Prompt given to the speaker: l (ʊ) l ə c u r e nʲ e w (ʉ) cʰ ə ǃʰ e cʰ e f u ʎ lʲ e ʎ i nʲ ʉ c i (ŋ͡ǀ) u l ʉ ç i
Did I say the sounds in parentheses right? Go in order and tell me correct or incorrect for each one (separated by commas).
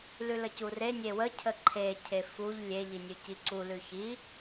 incorrect, incorrect, incorrect